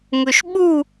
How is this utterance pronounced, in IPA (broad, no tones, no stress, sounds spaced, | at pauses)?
ŋ ɵ ʃ ɓ u